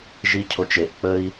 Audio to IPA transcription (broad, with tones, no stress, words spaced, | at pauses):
ʒi˦cʰo˧t͡ʃe˨ʔ k͡pə˦i̯